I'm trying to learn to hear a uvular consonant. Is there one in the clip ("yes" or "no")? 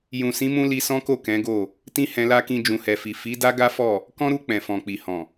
no